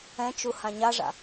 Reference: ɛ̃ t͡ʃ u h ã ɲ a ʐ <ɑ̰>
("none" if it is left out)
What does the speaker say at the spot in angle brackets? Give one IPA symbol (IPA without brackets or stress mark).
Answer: a̰